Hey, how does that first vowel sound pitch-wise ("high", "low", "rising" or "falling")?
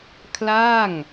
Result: falling